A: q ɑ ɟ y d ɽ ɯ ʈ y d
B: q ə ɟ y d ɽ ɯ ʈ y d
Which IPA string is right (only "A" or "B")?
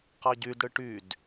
A